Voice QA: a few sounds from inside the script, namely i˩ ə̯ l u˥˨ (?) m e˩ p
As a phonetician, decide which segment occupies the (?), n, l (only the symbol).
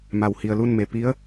n